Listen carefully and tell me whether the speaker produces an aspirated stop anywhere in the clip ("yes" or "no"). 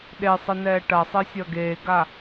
no